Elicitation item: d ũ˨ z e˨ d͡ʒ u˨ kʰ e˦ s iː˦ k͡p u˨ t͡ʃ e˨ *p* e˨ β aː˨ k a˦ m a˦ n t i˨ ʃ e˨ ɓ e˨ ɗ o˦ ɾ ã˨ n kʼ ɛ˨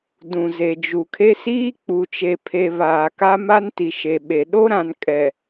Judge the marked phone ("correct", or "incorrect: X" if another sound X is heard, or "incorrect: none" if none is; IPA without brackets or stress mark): incorrect: pʰ